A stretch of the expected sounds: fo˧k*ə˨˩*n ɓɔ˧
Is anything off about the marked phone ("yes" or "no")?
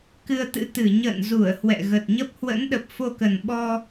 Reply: no